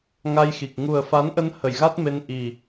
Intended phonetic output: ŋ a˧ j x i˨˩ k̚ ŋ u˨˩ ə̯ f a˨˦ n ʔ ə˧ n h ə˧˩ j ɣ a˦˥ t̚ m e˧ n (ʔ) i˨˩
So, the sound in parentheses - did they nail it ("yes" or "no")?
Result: yes